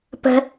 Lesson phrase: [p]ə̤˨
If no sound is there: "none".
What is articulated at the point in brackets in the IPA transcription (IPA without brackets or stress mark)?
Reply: p